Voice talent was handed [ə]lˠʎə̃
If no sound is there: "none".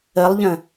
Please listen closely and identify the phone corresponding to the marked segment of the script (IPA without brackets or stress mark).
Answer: ə